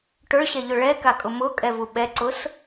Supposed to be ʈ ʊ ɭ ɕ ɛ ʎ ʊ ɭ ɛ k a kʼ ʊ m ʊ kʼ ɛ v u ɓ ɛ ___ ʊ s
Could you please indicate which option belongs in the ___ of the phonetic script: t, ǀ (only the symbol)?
ǀ